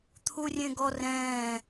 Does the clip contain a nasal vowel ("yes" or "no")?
yes